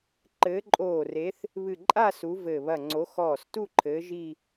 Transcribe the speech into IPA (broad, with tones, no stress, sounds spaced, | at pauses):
ǃ ɘː˨˦ ǃʼ oː˧˩ r e˨˦ θ | β ɨ˧˩ ǃʼ a˥˧ s u˨˦ v ɘː˧˩ β ɐ˧˩ ŋ͡ǀ o˨˦ x ɔː˧˩ s t u˥˧ ǃʰ ɘː˨˦ ʒ i˥˧